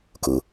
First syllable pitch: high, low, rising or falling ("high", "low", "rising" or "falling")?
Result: low